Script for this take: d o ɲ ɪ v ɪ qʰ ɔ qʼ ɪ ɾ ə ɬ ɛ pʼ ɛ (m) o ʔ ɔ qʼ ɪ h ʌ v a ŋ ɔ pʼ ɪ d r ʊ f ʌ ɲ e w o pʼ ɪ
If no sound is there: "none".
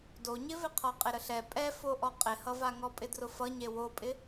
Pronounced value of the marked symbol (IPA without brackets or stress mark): f